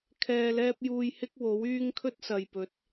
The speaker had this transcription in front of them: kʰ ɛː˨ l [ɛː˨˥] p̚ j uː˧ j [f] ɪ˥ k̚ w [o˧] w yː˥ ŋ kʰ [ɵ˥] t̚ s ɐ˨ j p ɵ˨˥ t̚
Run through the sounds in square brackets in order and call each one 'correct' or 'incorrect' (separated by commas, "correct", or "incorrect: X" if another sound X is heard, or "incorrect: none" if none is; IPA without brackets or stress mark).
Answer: incorrect: ɛː˧, incorrect: h, incorrect: o˨˥, correct